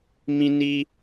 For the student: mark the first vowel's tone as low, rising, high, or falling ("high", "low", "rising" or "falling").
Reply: high